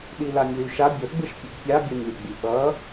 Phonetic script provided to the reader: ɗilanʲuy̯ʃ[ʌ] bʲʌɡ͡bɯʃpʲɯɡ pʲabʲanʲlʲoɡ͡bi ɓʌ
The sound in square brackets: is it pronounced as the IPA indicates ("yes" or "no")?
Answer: no